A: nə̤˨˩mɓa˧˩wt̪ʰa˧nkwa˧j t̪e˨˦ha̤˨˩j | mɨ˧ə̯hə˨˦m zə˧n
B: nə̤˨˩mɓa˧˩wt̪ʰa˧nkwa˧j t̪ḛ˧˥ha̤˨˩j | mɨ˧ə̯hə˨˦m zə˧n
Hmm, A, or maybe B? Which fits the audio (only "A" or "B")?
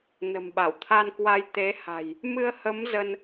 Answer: A